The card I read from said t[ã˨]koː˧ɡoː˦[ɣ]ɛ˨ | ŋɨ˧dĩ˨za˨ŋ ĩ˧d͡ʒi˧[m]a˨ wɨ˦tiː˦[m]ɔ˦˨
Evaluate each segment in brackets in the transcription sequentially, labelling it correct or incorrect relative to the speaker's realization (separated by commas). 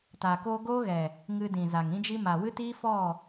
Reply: incorrect, correct, correct, incorrect